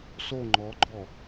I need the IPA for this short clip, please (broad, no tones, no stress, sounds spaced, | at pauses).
s o ŋ͡ǃ ɔ ɡ͡ǃ ɔ